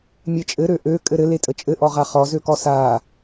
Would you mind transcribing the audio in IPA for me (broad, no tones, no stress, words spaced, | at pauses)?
mʲet͡ʃʼɘɾø ʔø kʼɘɾɘletʼə t͡ʃʼɘʔɔʁa χɔzøkɔ sa